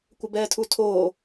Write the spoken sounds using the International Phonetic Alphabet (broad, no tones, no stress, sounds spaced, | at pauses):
kʷ ə b ɛː tʰ u tʰ oː